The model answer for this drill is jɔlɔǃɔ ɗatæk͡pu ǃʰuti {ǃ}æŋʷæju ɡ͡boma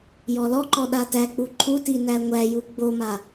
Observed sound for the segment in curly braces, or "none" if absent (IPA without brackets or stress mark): n